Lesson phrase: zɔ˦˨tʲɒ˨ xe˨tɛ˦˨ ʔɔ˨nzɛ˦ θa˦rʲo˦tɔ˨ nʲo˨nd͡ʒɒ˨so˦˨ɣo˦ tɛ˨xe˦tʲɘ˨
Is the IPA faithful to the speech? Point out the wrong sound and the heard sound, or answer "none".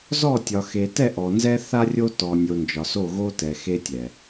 ɘ˨ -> ɛ˨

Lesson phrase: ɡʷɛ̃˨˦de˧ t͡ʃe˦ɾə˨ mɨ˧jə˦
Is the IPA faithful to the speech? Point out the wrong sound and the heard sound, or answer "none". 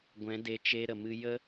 none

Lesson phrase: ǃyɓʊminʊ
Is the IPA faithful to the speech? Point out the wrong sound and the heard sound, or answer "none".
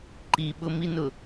y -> i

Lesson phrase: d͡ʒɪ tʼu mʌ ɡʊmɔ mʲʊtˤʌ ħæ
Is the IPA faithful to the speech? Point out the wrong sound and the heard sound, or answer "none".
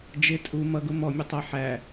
none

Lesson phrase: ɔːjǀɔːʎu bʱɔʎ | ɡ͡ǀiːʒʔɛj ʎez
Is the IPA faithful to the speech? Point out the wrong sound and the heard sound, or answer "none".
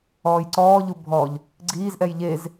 ʒ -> z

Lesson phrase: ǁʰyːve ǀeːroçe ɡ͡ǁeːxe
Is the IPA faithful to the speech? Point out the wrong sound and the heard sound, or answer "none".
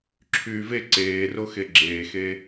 ç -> x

